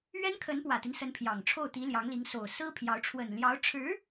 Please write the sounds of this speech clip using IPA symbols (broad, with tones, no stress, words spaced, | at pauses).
ɥɛ˥nkʰə˧˥npwä˨˩t̪i˦n sə˧˥npʰjɑ˨˩ŋʈ͡ʂʰo˥˩ʊ̯t̪i˧˥ ljɑ˧˥ŋli˧˥ŋ so˨˩ʊ̯ sɹ̩˥pʰjɑ˧˥ʊ̯ ʈ͡ʂʰwə˨˩nljɑ˧˥ʊ̯ ʈ͡ʂʰɻ̩˧˥